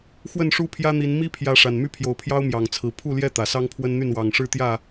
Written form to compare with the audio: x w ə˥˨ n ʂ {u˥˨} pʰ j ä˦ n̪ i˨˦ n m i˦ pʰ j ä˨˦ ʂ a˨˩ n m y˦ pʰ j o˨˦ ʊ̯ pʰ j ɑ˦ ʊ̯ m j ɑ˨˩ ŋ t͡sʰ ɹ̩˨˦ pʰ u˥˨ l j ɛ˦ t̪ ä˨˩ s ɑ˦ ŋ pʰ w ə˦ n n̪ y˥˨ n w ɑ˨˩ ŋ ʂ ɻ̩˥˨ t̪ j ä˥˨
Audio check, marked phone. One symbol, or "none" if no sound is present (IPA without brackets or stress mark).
u˦